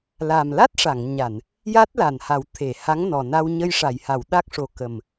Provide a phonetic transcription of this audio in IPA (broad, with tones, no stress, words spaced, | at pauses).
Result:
la˨˩mla˦˥t̚ʂa˨˩˨ŋɲa˨˩˨n | ja˦˥t̚la˨˩nha˨˩˦w t̪ʰe˨˩˨ ha˧˥ŋnɔ˨˩na˧wɲə˧j ʂa˨˩˨jha˨˩˨wɗa˦˥k̚ʂo˨˩ kə˨˩m